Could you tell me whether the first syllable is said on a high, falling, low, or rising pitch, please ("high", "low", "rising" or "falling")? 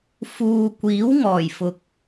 low